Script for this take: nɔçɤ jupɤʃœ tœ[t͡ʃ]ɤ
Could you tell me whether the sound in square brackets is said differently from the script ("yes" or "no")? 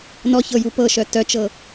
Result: no